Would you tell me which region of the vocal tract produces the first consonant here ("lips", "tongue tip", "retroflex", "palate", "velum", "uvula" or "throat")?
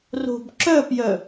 tongue tip